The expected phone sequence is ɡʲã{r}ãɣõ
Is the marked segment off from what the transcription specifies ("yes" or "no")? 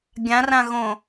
no